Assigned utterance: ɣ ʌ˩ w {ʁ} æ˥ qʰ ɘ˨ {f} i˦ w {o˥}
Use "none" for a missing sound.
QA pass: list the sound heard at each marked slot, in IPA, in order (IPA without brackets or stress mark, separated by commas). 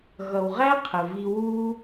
ʁ, v, u˥